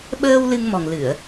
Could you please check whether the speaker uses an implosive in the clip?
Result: yes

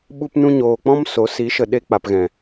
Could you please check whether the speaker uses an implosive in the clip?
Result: yes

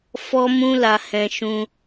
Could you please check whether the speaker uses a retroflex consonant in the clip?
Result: no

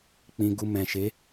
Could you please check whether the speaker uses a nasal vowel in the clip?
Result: yes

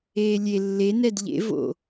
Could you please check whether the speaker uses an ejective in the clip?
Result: no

